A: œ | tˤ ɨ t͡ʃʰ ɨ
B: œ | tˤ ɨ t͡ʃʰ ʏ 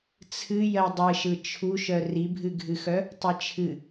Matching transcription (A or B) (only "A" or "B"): A